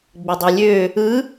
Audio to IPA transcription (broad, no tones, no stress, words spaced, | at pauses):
ɡ͡bɯdˤylʲø | ɯ